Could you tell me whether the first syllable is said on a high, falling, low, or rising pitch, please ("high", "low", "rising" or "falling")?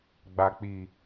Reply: low